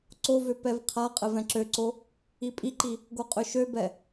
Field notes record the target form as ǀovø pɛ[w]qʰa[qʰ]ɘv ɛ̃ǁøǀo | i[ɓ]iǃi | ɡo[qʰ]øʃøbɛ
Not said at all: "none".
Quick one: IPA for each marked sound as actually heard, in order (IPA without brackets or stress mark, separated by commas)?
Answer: v, qʼ, pʼ, qʼ